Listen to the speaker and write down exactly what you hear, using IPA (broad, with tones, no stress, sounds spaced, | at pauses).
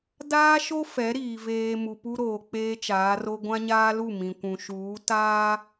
d aː˦ ʃ o˦ f ɛ˨˦ ɾ iː˨ v eː˨ m u˨ p u˦ ɾ oː˨ k͡p eː˦ t͡ʃ aː˨˦ r o˦ ɡʷ ã˦ ɲ aː˦ l u˦˨ m ĩ˨ kʷ ũ˨ ʃ uː˨˦ t aː˦